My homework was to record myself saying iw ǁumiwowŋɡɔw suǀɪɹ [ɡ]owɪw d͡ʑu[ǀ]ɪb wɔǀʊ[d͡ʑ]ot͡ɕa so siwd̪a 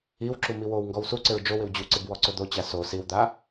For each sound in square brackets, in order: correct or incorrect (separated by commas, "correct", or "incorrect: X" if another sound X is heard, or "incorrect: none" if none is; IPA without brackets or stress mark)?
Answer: incorrect: d͡ʒ, correct, incorrect: d̪